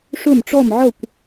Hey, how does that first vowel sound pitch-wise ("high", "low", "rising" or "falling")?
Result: falling